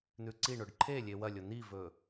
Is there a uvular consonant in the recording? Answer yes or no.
no